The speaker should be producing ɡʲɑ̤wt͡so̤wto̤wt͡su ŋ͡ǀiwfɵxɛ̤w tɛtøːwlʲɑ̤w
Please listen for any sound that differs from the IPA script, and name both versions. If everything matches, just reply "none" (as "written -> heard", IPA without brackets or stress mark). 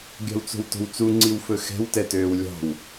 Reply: none